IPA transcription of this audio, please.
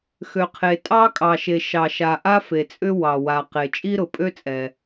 x ø˩ qʰ e˩ tʼ ɑ˥ kʼ ɑ˩ ʃ e˩ ʃ ɑ˩ ʃ a˩ ʔ a˥ f e˩ t͡sʼ ʏ˥ w ɑ˩ w a˩ q e˩ t͡ʃʼ i˥ ɾ ʊ˩ pʼ ø˥ t͡sʼ ɛ˩

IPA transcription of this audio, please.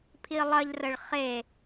pʰ i lˠ ɐ ʎ r ə ɭ χ e

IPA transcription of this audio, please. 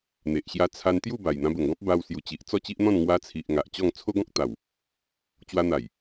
n̪ e˨ ʔ ɕ j a˧ t͡sʰ a˧ n t̪ j u˥˧ b a˨˩ j n̪ ã˧ b ə˨˩ ŋ ɡ ɔ̃˦ p̚ b a˧ w s j u˨˩ t͡ɕ i˨ ʔ t͡s ɔ˥˧ t͡ɕ i˦ ʔ n̪ ɔ̃˥˧ n ŋ w a˧ t͡sʰ i˨ ʔ ŋ a˨ ʔ t͡ɕ ɔ˥˧ ŋ t͡sʰ o˦ ɡ ɔ̃˦ k̚ t̪ a˨˩ w | t͡ɕ w a˧ n̪ a˨˩ j

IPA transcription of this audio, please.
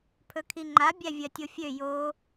pʰ ɵ kʰ i ŋ͡ǃ a bʲ æ vʲ ɜ tʲ o fʲ ø j o

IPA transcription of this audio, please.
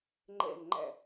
ŋ͡ǃ ɛ̰˦˨ n ŋ͡ǃ æ̰˦˨

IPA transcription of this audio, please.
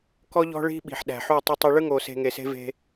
k ɔ˦ ʎ ɔ̤˦ ɭ i̤˦ ɓ i̤˨ ħ ɗ æ̤˨ ħ u˦˨ tˤ ə˦ tˤ ɐ˦ ɭ ɯ˦ ŋ o˨ s e̤˨ ŋ e˨ s e̤˦ v e̤˦

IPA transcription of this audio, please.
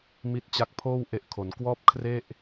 m i˦˥ t̚ t͡ɕ a˦˥ k̚ pʰ oː˥˩ w ʔ e˦˥ ʔ kʰ o˩˦ n k w ɔː˥˩ p̚ kʰ r e˥˩ ʔ

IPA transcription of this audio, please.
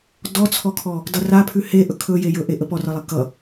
d ɔ t͡sʰ ɔ kʰ ɔ | d ʌ r a pʰ ʉ h e ʔ ɵ kʰ ɵ j e j ɵ ʔ e ʔ ə p ɔ r ʌ lˠ e k ʌ

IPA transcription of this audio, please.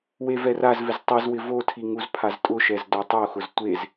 w e v ɛ r a z v ɪ z tˤ i z w ɪ v o tʰ i ŋ u z pʰ a z tʼ ʊ ʃ ɛ z d o tˤ o x ʊ z tʷ e z

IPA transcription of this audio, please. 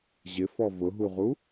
ʑ ɪ f ɔ v ʊ ɦ u ʁ u

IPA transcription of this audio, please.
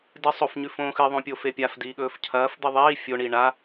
d ɨ sˤ o f ɲ ʉ f õː x ɨ ðˤ õ pʲ o f e pʲ a f d iː ɠ ɵː f cʰ ɐː f d̪ ɨ ðˤ iː fʲ o ɳ i ɳ a

